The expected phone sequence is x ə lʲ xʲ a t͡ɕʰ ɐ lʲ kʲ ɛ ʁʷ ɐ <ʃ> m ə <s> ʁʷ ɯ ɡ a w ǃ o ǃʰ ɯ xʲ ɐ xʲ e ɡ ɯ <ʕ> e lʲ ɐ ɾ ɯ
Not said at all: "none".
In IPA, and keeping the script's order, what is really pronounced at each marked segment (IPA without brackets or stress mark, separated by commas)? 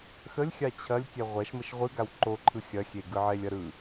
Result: ʃ, ʃ, ʕ